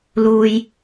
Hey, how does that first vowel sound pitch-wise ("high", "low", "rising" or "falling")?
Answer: low